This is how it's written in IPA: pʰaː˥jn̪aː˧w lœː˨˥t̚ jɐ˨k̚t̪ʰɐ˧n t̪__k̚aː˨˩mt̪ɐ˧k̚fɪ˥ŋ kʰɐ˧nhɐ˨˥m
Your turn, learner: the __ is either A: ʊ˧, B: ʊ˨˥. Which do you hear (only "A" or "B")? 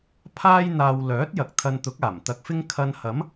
B